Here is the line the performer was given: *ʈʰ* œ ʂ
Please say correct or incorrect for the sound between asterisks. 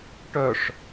incorrect